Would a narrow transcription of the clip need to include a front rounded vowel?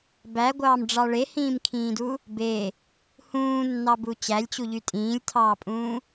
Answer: yes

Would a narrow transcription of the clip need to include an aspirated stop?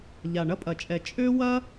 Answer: no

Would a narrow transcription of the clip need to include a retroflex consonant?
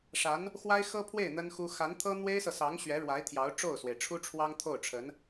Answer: yes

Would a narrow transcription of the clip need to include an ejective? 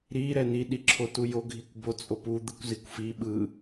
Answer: yes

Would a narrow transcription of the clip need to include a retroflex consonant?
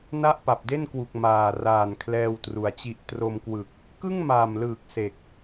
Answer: no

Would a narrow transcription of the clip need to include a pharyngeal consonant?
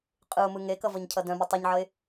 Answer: yes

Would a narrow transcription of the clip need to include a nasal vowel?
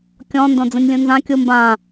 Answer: yes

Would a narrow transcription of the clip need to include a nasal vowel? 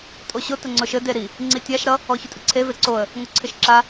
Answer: no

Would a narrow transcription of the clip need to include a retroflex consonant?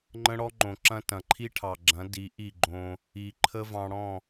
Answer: yes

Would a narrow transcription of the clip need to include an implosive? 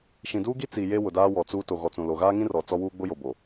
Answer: no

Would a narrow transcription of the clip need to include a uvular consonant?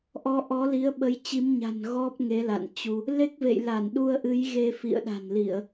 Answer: no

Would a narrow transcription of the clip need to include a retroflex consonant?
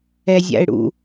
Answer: yes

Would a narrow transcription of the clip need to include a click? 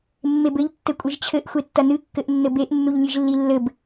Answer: no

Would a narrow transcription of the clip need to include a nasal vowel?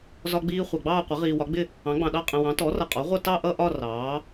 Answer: yes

